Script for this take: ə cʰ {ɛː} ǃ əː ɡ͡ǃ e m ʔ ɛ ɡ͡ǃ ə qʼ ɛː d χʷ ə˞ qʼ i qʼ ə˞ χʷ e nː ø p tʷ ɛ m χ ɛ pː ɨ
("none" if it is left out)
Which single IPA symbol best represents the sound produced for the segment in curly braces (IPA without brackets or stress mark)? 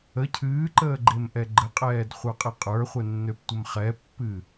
ɨː